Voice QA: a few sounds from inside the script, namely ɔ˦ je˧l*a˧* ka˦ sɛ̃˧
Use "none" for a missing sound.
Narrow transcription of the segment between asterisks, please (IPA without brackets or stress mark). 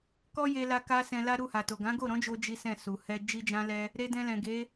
a˧